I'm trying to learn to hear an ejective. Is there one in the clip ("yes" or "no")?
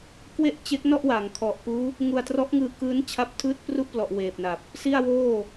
no